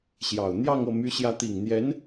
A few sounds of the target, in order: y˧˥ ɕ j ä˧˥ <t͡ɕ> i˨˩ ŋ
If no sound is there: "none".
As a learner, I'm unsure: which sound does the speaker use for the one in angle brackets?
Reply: t̪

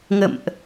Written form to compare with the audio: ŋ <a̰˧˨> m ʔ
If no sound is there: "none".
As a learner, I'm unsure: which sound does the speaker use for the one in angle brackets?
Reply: ə̰˧˨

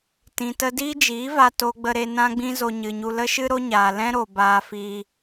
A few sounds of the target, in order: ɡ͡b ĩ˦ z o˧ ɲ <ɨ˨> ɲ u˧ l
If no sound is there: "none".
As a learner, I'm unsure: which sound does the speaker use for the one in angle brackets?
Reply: ɨ˨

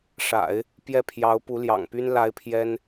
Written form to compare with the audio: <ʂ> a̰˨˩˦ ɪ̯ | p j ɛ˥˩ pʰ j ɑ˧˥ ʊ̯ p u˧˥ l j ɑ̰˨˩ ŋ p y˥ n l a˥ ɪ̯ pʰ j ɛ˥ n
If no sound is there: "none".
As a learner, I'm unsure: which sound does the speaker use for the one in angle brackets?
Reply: ʂ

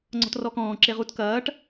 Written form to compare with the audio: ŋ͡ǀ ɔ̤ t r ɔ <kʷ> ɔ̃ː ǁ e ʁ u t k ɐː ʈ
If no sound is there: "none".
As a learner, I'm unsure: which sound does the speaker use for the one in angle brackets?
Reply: k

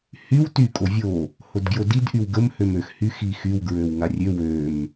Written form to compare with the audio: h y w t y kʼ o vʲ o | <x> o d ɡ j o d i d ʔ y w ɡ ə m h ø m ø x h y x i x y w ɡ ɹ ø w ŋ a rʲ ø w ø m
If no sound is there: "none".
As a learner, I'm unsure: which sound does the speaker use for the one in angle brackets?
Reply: h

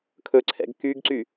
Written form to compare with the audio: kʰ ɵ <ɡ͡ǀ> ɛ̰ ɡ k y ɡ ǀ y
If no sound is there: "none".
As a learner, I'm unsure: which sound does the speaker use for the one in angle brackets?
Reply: ǀʰ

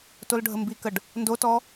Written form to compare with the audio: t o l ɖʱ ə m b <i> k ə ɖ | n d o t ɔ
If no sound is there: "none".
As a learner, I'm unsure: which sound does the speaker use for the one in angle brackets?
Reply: i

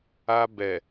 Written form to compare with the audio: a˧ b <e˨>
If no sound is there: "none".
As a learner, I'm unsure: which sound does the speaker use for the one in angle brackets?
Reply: ɛ˨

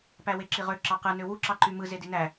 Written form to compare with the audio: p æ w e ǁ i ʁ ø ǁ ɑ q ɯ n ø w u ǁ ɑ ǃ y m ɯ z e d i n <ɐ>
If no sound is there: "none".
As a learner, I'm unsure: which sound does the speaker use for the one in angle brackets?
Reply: æ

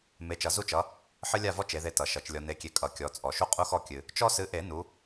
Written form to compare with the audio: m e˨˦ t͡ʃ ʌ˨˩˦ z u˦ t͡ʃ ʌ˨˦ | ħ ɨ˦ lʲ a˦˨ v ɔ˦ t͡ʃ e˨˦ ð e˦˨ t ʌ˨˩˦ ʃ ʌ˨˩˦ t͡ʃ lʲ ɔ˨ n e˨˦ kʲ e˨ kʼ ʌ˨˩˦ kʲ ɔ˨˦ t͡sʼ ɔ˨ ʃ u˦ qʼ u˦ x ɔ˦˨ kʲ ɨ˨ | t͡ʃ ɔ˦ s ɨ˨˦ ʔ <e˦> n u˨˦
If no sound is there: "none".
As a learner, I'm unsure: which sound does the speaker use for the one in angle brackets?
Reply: e˨˩˦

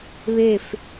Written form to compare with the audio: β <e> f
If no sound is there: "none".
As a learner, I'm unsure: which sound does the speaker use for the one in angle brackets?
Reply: e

